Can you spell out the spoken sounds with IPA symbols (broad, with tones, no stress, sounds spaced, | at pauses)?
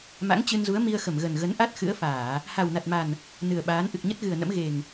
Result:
m a̰˧˥ ŋ t͡ɕ ɨ˧ n z u˨˦ ə̯ m i˧ ə̯ x ə˧˩ m ɣ ə˨˩ n ɣ ə˨˦ n ʔ a˦˥ t̚ x ɨ̰˧˥ ə̯ f aː˧˩˨ | h a˨˩ w n a˨˩ t̚ m a˨˩ n | n ɨ˨˩ ə̯ ɓ aː˨˦ n ʔ ɨ˨˩ k̚ ɲ ə˦˥ t̚ ɣ ɨ˨˩ ə̯ n ə̰˧˥ m ɣ e˨˩ ŋ